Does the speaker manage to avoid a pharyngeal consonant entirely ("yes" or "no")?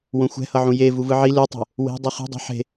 no